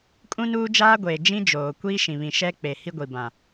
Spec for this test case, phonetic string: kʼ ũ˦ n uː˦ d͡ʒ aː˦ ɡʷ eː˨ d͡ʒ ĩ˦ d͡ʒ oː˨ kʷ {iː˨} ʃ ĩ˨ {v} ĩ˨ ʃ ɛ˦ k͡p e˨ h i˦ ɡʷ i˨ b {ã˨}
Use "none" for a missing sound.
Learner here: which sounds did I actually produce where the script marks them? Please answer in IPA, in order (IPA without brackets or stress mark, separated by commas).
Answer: iː˦, β, ã˨